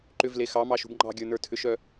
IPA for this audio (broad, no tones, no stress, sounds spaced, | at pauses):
ǃ ʏ v l e x ɑ m ɑ ʃ ṳ b ŋ͡ǃ ɑ̤ ɡʲ ə˞ n ə˞ tʰ ʏ ʃ œ